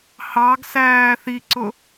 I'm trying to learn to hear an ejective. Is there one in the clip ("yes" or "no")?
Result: no